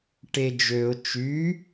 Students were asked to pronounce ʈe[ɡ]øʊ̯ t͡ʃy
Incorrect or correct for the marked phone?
incorrect: d͡ʒ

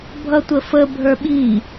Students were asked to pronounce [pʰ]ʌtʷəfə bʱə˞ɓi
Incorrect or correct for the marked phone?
incorrect: bʱ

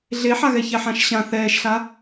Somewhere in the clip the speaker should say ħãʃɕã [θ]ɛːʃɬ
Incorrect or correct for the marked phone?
correct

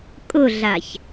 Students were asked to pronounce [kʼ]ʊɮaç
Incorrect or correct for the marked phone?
correct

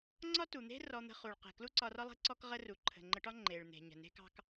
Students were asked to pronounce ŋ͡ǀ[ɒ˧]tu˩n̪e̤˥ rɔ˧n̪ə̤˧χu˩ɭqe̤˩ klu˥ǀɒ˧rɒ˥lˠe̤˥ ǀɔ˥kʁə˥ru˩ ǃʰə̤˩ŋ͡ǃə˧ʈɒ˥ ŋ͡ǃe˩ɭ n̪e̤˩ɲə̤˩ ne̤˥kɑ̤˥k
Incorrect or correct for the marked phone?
incorrect: ɒ˥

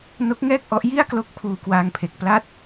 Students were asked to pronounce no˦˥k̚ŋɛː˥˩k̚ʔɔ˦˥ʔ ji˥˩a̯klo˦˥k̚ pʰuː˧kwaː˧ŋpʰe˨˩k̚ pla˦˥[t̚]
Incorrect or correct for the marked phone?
correct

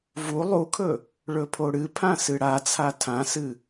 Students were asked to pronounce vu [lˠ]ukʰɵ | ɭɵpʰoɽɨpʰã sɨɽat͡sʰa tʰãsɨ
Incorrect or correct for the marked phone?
correct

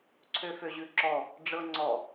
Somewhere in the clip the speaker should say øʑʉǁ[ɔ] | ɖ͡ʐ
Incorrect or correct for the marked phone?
correct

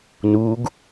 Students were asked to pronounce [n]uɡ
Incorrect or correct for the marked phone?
correct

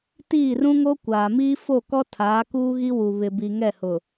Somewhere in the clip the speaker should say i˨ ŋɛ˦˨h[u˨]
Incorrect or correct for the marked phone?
incorrect: ʊ˨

